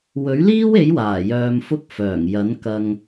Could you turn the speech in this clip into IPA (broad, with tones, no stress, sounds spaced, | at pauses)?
w ɵ˨˥ ɥ l iː˥ w e˨˥ j w aː˨˩ j œː˧ m f ʊ˥ k̚ f œː˨˩ ŋ j ɐ˨˥ n k ɐ˧ ŋ